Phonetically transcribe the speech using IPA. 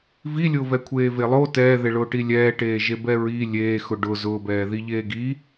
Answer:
v i lʲ ʊː v ɛ kʷʰ eː v e lˠ o t ɛː ð e ɭ ʊː ʈ i lʲ ɛː ʈ eː ʒ e b ɛ ɹ i lʲ eː x ʊ ɖ ʊ z ʊː b ɛː ð i ʎ eː ɡ i

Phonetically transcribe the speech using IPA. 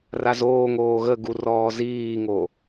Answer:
r a z oː ŋ oː ɣ ə ɡ u r ɔː z iː ŋ o

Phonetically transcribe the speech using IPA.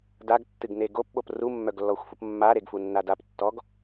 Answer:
d a ɡ tː ɨ ɡ n e ɡ o p ɓ o p r u mː œ ɡ lː ɔ xʷ f u p mː a ɾ e ɡ f u nː a d a p tː ɔ ɡ

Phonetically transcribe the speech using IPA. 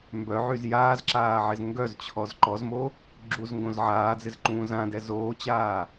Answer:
m b œ ʕ y z j aː z ǁ aː ʕ ɪ z ŋ ɡ œ z t͡ɕʰ ɔ z ǃ ɔ z m o | ɡ͡ǁ u z ŋ ɡ õ z ʕ aː d͡z ɪ z ǃ ũː z ã d ɛ z oː t͡ɕ aː

